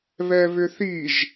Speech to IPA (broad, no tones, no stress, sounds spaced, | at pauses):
β ɛ β ʏ θ i ʒ